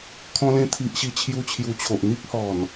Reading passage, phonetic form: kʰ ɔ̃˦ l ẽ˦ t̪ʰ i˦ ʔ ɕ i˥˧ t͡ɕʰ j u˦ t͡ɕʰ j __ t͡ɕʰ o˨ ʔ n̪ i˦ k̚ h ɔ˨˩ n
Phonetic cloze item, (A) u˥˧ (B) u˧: B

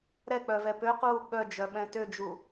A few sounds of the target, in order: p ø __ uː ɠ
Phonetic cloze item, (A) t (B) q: B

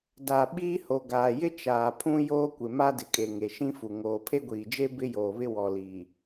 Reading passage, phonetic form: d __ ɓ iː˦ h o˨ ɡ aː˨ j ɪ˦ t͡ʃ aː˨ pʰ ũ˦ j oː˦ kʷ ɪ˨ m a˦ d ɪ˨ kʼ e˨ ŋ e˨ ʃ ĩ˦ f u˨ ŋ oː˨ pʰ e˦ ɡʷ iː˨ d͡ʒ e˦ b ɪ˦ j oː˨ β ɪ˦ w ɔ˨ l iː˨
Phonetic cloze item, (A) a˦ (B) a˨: B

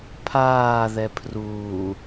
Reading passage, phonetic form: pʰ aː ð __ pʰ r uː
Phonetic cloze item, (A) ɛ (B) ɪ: A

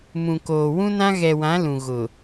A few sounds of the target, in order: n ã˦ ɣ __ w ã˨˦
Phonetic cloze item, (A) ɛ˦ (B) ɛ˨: B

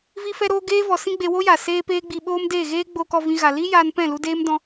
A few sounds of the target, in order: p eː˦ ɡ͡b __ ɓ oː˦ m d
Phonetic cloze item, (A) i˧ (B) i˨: A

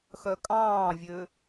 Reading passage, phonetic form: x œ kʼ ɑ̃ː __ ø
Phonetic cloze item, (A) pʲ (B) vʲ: B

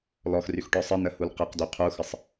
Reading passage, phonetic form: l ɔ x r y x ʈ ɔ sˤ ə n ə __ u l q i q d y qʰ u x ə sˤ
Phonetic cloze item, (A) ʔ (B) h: B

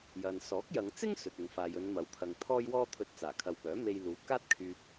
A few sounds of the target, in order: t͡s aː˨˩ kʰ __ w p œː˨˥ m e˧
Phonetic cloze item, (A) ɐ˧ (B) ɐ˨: B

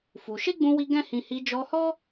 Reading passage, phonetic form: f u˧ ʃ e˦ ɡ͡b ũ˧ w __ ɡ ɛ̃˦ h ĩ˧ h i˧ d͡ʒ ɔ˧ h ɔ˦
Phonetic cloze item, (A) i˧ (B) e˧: A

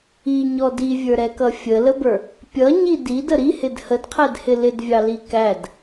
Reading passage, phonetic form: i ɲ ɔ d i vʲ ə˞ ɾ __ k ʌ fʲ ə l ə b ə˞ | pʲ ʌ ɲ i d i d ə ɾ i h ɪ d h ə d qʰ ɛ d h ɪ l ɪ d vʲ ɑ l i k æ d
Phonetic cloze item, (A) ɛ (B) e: A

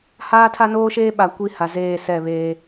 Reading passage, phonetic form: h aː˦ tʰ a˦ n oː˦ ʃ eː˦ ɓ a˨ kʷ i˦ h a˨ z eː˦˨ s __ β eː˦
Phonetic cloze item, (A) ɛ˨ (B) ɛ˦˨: B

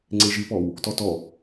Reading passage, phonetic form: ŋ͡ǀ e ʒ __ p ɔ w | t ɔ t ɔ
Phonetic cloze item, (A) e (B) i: B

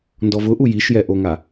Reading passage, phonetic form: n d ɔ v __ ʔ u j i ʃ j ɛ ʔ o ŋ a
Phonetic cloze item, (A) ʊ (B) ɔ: A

